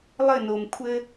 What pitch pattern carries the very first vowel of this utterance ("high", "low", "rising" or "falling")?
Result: falling